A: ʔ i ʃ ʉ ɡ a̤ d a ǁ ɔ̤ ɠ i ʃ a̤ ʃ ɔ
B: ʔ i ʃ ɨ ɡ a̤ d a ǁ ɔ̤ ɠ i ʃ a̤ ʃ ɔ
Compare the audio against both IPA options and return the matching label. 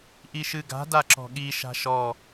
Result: B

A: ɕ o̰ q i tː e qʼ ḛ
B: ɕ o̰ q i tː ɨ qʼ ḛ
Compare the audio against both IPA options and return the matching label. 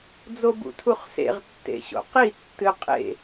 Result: B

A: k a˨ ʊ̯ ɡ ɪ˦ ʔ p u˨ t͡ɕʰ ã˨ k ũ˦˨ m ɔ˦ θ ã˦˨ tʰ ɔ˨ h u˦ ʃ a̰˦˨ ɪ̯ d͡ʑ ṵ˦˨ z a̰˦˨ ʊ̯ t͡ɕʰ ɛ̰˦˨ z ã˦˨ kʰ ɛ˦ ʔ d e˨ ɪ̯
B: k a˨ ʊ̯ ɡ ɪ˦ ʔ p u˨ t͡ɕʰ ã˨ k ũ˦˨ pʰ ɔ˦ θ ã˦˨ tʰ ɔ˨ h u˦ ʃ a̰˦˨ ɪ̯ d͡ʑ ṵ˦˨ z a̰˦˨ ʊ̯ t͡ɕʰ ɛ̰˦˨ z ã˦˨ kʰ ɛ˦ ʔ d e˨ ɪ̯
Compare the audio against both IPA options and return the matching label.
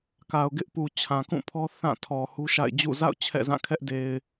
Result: B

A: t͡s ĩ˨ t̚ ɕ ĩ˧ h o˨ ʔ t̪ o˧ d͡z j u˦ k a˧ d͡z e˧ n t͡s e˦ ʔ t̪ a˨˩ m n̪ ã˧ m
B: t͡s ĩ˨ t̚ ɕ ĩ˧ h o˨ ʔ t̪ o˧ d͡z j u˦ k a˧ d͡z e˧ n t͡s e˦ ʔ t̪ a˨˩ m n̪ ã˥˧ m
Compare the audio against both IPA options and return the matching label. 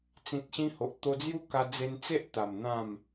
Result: B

